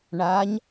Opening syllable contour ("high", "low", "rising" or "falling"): rising